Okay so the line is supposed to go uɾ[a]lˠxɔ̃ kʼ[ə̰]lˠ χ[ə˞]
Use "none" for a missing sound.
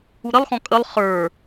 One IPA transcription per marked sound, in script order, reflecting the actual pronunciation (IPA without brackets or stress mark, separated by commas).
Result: ə, ə, ə˞